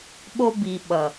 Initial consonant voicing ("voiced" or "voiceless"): voiced